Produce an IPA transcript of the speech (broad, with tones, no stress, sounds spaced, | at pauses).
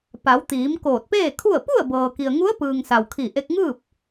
p a˩˧ w t̪ iː˩˧ m k oː˧˩ t̚ p eː˥˨ kʰ u˥˨ ə̯ p u˥˨ ə̯ b ɤː˩ k i˩ ə̯ ŋ u˧˥ ə̯ p ɯː˩ ŋ s a˩ w kʰ i˧˩ ʔ e˧ k̚ ŋ ɯː˥˨ p̚